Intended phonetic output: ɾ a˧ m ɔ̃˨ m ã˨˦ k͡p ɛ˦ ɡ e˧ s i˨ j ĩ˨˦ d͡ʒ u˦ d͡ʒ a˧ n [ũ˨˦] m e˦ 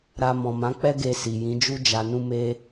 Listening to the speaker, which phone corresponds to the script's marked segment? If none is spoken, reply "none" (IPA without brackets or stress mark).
ũ˦